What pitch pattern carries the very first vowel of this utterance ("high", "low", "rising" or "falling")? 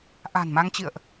low